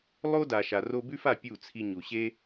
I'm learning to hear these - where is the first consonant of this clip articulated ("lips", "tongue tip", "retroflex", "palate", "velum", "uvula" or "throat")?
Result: tongue tip